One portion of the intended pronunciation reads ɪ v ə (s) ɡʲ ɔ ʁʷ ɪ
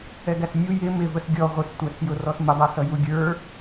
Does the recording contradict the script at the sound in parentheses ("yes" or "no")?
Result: no